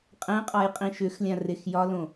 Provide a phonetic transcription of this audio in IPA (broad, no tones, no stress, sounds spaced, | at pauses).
qʼ ɛ̃ qʼ ɒ j qʼ ĩ ʃ ʏ x lʲ ã r e x j ɒ l õ